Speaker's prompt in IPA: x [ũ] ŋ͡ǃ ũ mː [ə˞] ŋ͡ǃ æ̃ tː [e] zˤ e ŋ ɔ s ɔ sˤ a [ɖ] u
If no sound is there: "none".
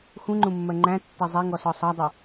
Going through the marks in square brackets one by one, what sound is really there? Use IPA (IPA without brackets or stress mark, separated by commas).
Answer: ũ, ɜ, e, dˤ